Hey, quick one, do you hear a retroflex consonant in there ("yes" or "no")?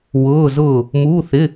no